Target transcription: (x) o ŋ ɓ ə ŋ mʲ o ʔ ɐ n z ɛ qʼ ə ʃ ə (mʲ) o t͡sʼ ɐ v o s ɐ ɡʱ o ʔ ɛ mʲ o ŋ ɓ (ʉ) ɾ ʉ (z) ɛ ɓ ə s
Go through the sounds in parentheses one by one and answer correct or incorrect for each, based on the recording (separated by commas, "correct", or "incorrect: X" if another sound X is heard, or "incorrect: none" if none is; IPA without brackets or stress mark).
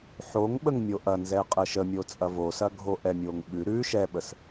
incorrect: ħ, correct, correct, incorrect: ʃ